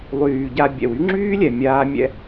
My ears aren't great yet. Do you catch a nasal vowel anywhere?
no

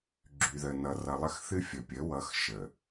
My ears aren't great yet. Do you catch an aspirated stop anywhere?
no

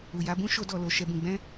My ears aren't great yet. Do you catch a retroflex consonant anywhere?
no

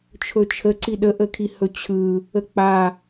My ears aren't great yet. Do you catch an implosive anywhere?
yes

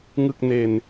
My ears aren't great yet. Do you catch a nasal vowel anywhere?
no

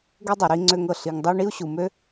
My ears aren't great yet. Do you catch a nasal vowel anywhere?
no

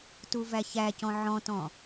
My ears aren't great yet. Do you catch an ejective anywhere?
no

